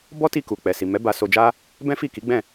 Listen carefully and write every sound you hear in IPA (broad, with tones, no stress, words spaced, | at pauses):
bɔ˦ti˧ ku˨k͡pɛ˨ si˨mɛ˨˦ ba˧ so˧d͡ʒa˦ | bɛ̃˦fi˦˨ki˨˦ ɡ͡bɛ̃˦˨